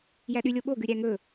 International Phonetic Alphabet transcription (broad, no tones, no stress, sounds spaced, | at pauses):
j æ ɗ y lʲ o ɓ o ɡ ʉ ɾʲ æ ŋ ɵ